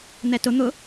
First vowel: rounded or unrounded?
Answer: unrounded